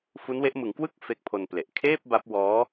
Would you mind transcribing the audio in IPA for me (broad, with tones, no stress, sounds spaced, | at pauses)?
f u˦˥ n w e˦˥ ʔ m ɯ˩˦ ŋ k w ɯ˥˩ k̚ f e˦˥ k̚ pʰ o˧ n p l e˨˩ ʔ kʰ eː˥˩ p̚ b a˦˥ p̚ w ɔː˦˥